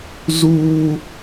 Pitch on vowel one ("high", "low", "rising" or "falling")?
high